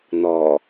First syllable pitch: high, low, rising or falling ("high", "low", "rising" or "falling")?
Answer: low